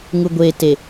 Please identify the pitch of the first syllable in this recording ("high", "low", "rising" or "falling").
low